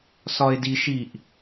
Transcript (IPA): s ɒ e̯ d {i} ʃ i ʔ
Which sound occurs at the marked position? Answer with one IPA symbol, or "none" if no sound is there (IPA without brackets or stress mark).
i